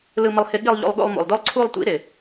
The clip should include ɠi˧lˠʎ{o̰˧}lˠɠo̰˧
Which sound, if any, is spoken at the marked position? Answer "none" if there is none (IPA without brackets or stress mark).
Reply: o̰˧